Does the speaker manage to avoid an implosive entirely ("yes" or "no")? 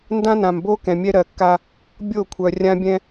yes